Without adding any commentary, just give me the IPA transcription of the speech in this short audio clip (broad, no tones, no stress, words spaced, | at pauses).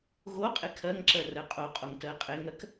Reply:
ɣoqʼe kʰɜŋǁɜ rɜqʼoqʼoŋ tɜqʼeŋɜk